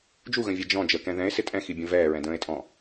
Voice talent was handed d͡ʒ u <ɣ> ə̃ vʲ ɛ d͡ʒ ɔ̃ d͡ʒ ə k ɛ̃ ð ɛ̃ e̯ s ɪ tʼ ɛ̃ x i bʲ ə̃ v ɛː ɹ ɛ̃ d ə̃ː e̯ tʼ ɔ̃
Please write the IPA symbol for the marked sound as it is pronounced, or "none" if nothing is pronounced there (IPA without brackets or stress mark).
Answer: ɣ